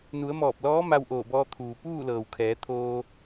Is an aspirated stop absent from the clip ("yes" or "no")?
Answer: no